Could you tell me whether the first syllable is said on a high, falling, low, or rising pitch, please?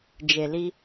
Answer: low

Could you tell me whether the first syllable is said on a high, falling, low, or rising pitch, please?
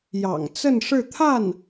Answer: low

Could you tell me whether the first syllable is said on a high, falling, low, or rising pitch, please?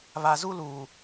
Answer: low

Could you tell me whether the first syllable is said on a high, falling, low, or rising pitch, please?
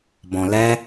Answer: low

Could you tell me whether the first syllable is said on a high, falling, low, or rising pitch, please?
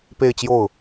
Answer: falling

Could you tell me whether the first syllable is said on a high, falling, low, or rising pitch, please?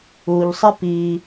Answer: low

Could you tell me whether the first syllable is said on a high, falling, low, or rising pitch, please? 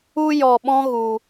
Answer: high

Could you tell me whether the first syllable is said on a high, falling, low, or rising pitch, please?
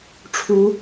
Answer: rising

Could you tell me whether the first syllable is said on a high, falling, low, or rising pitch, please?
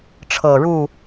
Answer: low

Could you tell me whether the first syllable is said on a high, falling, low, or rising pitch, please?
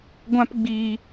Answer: high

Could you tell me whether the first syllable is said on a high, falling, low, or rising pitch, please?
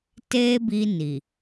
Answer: high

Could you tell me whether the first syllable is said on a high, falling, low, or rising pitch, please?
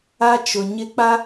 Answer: high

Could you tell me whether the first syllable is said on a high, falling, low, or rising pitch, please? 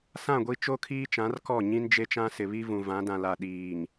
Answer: falling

